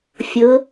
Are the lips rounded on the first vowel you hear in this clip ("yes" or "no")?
yes